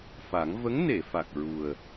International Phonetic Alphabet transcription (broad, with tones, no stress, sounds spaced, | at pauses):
f a˨˩˦ ŋ v ə˧˥ ŋ n e˨˩˨ f a˨˩ k̚ ɹ u˨˩ ə̯